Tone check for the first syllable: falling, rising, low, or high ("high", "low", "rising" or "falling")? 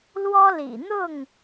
high